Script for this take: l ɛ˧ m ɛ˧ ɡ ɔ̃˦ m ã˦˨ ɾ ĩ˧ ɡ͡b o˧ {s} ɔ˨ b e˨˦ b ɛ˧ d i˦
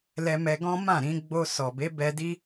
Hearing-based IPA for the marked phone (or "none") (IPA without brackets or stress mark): s